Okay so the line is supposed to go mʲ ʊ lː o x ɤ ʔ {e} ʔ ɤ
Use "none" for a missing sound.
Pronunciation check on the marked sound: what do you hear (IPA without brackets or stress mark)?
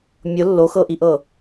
i